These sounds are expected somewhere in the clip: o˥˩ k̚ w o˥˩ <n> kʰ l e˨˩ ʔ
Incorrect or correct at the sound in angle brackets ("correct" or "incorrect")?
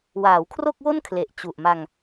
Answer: correct